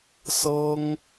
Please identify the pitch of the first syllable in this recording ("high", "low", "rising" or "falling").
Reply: high